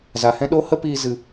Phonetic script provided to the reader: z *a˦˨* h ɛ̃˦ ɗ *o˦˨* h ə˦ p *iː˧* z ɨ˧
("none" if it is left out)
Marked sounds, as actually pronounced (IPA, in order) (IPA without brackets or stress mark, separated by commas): a˨, o˦, iː˧